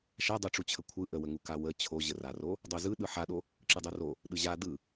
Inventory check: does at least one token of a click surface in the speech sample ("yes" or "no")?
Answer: yes